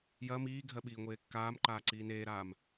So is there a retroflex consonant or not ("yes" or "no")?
no